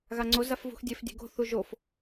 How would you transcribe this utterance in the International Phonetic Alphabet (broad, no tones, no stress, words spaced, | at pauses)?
ɣaŋ͡ǀo zafvṳxdʲef dʲe̤ɡo̤ θuʒof